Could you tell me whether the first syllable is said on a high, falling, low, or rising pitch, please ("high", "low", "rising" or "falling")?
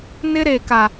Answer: high